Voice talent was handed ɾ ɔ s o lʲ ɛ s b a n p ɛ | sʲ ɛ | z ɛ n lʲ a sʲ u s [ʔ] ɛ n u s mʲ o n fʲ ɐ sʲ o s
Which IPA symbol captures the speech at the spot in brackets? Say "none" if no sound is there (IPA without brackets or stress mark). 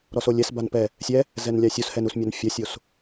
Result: h